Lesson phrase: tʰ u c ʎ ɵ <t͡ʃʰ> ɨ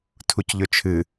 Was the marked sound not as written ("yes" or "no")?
no